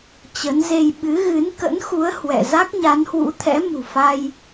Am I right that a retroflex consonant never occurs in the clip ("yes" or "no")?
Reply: yes